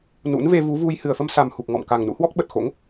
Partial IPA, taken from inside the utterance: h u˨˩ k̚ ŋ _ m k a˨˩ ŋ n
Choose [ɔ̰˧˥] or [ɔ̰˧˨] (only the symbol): ɔ̰˧˨